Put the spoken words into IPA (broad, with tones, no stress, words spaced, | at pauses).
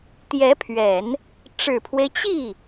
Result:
t̪jɛ˧˥pʰɥɛ˨˩˦n | ʈ͡ʂɻ̩˨˩pʰwe˦ɪ̯ t͡ɕi˥˩